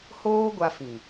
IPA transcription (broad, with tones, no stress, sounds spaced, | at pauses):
h oː˦ ɡʷ a˧ f ĩ˨